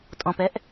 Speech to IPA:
tʼ ɔ̃ p ɛ ʔ

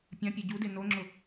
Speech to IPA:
pʲ ã pʲ e ɟ u d e n o ŋ͡ǁ ʊ

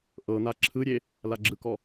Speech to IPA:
ʔ ɤ n̪ a ǁʰ ɯ ɾʲ e | l a ɡ͡ǁ ɯ k ɔ

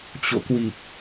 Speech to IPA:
t͡ɕ o̰˧˨ k w i˨˩ k̚

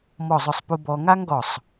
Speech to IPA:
m ɔ˧˩ zˤ ʊ˧˩ sˤ p u˧ b ɔ˧ ŋ a˥ ŋ ɡ ɔ˧˩ sˤ

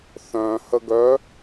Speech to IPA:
θ œ̃ h ə ɡ œ

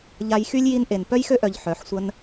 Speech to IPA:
ʎ a˧ j x y˦ lʲ j i˧ n ʔ e˨ n p œ˦ j x ø˦ ʔ œ˨ ʎ ħ œ˨˦ ħ sʷ ə˦ n

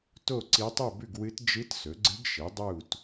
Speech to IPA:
t o˥˨ ǀ i˧˥ tˤ u˥˨ b ʉ˥˨ ɡ w ɨ˧˥ t d͡ʒ ɨ˧˥ t s ɵ˩˥ ɡ͡ǀ ɨ˧˥ ɡ ʃ i˩˥ dˤ u˥˨ t

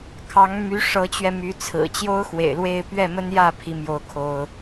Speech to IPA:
kʰ ɑ˧˥ ŋ m y˧˥ ʂ ɤ˧˥ t͡ɕ ɥ ɛ˧ m y˧˥ t͡sʰ ɹ̩˨˩ t͡ɕ j o˥ ʊ̯ x w ḛ˨˩ ɪ̯ l w e˥˧ ɪ̯ p ɥ ɛ˥˩ m ə˥ n j ä˥˩ pʰ i˥ m j o˥ ʊ̯ kʰ o˥ ʊ̯

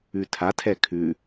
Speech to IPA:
ʉ tʰ a tʰ ɛ kʰ ʉ

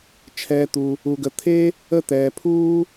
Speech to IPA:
t͡ʃʰ ɛː˨ t̪ u˩ | u˩ ɡ ə˩ t̪ʰ e˥ | ə˦ t̪ ɛː˩ pʰ uː˥

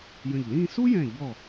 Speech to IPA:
j ə̃˧˩ ʎ l ĩ˥˧ s u˥ j ɛ̃˧˩ ʎ ɔ˧˩

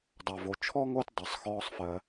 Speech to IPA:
dˤ a˩ v o˩ t͡ʃʰ ɔ˥ ŋ o˦ t dˤ ɜ˩ sˤ x ɔː˦ sˤ f ɜ˨

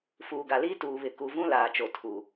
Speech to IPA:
f uː˨ ɡ a˨ l iː˦ t uː˨ β ɪ˨ k u˨ v ũ˦ l aː˨ t͡ʃ o˨ tʰ u˨

